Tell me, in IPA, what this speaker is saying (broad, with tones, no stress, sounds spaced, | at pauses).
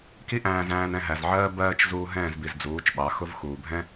k i˦ ʔ æ̃ː˧ z æ̃ː˧ n ɛ̃˧ ɦ æ˨ z ʕ ɜː˦ b ɜː˦ t͡ʃ z uː˧ ɦ ɛ̃ː˦˨ z b i˨ z d͡z uː˨˦ t͡ʃ ɓ ɑ˨˦ x ʊ˦ v x uː˨ bʱ ɛ̃˦